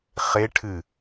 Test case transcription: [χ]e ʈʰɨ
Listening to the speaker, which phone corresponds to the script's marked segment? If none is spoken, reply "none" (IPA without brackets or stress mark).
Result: χ